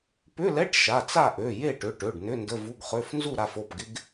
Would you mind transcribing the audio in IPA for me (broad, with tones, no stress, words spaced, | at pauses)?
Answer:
pʏ˧˥˧lɛ˧˥˧ʈ ʃa˩˧˩t͡sa˥˨ʔø˩˧˩ je˥˨ʈʏ˩˧˩ʈø˩˧˩ɖ nʏ˧˥˧ndə˧˥˧vu˧˥˧ɡχø˧˥˧f nzu˥˨ɾa˥˨fo˩˧˩pɡɪ˧˥˧ɡ